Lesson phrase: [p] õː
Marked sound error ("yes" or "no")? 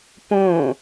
no